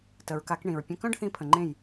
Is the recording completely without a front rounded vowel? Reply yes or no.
no